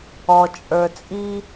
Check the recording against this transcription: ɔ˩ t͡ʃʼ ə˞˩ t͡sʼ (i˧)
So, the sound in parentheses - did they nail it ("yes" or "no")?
yes